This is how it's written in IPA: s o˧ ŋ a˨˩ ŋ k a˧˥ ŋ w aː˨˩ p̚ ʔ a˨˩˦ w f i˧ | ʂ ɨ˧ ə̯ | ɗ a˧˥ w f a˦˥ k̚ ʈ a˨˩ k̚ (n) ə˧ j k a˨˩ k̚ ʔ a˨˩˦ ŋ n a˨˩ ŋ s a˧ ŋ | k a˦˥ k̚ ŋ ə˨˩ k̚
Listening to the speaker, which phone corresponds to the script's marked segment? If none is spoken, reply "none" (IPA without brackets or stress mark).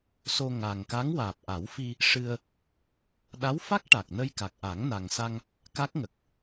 n